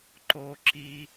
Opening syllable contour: high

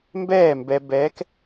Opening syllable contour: falling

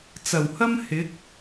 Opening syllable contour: low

